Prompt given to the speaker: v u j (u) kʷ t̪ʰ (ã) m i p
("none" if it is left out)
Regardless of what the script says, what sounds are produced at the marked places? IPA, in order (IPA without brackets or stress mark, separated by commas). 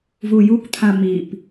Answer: u, ã